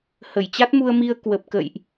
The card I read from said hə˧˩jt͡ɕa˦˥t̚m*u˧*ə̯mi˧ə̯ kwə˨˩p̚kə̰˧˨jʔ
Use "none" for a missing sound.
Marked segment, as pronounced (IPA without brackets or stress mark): u˧